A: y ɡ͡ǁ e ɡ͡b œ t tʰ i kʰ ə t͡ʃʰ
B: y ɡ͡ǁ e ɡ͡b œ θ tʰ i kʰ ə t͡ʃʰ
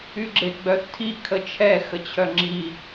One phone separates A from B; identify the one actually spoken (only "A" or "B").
B